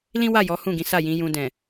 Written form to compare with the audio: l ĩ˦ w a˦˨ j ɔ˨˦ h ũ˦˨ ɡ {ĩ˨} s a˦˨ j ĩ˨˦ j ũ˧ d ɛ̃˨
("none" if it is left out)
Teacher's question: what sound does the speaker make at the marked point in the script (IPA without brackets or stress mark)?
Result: ĩ˨˦